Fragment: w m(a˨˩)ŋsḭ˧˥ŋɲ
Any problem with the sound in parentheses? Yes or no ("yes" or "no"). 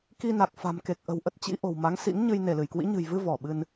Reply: yes